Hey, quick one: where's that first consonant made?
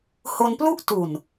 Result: throat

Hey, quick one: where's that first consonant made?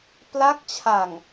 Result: lips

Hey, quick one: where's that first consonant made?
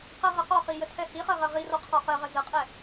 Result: uvula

